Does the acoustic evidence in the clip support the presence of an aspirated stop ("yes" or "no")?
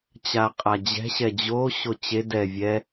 no